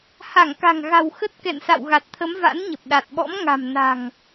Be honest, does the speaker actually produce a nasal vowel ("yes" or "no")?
no